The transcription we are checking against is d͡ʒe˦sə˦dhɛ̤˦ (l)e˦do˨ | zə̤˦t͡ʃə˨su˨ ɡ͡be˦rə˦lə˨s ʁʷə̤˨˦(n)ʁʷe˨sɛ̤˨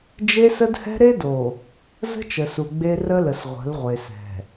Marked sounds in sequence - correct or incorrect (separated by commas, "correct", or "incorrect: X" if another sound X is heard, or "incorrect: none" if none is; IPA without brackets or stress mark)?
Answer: incorrect: ɾ, incorrect: l